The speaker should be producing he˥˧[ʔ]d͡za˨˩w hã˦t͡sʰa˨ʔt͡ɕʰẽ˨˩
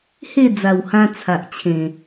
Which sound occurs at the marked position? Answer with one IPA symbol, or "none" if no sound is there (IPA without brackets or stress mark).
none